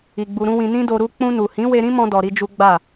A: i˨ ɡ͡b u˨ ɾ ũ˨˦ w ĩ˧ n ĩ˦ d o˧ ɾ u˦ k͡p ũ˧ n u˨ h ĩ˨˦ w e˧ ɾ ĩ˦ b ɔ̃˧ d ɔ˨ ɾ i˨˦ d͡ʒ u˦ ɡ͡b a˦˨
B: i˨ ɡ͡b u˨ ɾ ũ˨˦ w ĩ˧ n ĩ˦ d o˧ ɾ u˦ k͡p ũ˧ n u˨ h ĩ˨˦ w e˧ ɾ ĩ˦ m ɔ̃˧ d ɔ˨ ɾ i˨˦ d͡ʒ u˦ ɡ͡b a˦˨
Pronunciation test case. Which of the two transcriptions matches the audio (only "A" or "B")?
B